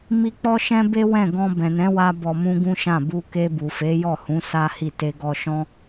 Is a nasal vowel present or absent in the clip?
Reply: present